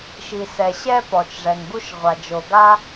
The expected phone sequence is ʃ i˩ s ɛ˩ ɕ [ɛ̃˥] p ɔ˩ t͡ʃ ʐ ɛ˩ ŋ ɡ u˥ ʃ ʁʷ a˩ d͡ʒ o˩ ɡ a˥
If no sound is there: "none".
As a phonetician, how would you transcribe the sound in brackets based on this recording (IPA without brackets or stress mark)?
ɛ˥